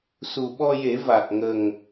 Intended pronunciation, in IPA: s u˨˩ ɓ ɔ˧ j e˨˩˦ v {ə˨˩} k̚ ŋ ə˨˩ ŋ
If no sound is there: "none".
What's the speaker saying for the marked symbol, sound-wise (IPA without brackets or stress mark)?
a˨˩